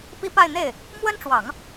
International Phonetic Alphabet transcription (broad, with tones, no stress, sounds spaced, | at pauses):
p i˥ p a˥˧ ɪ̯ n̪ e˥˩ ɪ̯ | m w ə˥ n ʈ͡ʂ w ɑ˨˩˦ ŋ